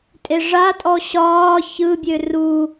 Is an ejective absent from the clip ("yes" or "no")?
no